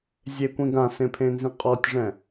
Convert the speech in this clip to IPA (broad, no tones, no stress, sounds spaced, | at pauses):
zʲ e kʷ ĩ ɡ ã s ẽ pʰ ẽ n z ĩ qʼ ɔ tʲ ʐ ɛ̃